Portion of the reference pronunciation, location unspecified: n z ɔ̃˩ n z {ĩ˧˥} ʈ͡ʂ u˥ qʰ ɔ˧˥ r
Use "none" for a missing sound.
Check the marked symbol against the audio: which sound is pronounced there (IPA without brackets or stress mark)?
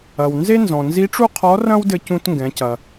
i˧˥